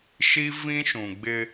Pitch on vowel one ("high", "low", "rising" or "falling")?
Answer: high